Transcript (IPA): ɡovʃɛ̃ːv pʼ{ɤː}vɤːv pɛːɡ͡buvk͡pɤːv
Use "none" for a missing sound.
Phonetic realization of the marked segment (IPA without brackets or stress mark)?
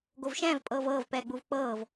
ɤː